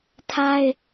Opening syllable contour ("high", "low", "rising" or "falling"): high